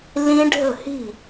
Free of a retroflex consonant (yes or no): no